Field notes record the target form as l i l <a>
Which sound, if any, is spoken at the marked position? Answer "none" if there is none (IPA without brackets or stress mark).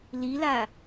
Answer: a